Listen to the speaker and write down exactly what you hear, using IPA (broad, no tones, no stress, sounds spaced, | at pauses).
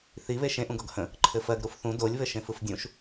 θ i β e ʃ ẽ ʔ ũ ɡ ɔ ɡ h ə̃ | ǃʰ ɘ f ɜ ɡ ɾ u f θ ũ d o lʲ β ɘ ʃ ẽ f ɯ f dʲ ũ ʃ